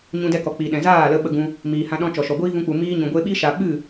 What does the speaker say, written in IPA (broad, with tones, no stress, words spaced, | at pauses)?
ɲũ˧dɛ˧kɔ˨ k͡pi˨ɗɛ̃˨zaː˦˨lə˧ ɓə˧ɡũ˧ | miː˨hã˧ ɗɔ̃˧t͡ʃɔ˨ʃɔ˨ɡʷiː˦ vũ˧k͡pu˨ miː˧ɲũ˨ɡʷe˧ɓi˦ ʃa˧ ɓɨ˦˨